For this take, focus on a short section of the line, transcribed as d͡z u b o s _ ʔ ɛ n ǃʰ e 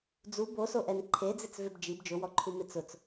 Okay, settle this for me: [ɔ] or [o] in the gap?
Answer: o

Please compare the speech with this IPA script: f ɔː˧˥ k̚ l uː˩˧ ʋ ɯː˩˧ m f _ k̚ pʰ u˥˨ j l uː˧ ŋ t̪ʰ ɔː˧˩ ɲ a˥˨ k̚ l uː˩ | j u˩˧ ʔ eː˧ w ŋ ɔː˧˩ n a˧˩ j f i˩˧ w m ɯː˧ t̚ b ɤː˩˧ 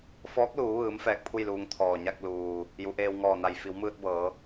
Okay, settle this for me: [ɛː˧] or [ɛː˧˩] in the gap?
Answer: ɛː˧˩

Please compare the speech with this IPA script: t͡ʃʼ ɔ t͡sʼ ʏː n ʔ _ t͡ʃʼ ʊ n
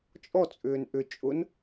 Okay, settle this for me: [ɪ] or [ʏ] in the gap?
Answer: ʏ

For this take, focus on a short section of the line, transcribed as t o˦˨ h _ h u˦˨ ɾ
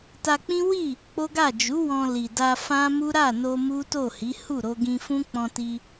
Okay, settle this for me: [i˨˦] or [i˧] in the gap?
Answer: i˨˦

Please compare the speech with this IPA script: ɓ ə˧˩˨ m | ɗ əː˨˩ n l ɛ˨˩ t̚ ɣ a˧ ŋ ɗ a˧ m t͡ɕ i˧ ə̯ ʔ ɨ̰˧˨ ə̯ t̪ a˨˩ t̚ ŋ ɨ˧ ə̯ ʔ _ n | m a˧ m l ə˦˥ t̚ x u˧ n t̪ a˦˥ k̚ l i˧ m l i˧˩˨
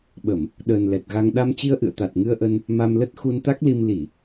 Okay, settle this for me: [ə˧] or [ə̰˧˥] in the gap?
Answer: ə˧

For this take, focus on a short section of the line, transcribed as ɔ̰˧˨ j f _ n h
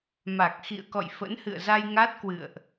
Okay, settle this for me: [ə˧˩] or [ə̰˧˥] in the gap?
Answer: ə̰˧˥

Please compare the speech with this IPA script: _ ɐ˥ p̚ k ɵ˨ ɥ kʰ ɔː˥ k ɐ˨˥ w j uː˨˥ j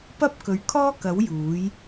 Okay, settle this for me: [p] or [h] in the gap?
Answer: p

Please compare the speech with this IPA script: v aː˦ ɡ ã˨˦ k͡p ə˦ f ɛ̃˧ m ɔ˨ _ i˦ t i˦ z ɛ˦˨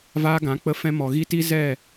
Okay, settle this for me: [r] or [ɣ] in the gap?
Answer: ɣ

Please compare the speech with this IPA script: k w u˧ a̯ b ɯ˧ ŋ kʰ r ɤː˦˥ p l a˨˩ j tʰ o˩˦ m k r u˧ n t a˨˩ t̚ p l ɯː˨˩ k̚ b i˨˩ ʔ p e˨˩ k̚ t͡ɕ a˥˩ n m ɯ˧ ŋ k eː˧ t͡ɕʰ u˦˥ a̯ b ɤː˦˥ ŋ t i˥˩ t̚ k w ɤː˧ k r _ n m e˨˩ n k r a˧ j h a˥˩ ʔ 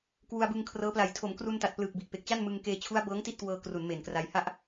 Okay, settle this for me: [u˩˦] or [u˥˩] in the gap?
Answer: u˩˦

